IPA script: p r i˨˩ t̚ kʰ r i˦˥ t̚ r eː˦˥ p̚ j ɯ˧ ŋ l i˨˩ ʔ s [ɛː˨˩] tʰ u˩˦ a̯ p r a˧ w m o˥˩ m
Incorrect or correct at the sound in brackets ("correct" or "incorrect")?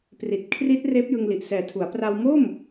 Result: correct